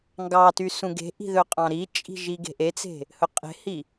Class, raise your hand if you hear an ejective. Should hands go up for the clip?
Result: yes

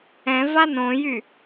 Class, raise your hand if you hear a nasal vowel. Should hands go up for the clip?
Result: yes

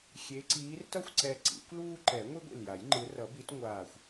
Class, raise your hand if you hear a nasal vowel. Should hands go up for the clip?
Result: no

